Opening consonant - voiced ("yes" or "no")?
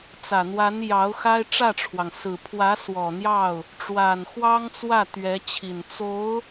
no